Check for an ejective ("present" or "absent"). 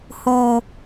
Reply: absent